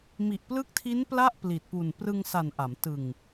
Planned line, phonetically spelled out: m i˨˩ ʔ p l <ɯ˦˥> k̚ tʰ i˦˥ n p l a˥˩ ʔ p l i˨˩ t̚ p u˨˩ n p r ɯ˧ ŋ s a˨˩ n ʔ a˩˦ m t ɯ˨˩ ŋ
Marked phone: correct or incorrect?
correct